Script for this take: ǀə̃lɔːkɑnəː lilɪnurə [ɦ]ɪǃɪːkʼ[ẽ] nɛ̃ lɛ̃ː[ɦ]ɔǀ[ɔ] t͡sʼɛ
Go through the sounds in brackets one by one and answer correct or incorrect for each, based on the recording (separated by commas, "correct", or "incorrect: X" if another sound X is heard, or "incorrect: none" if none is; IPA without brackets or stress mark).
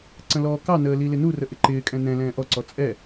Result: incorrect: ʔ, incorrect: ɛ̃, incorrect: ʔ, correct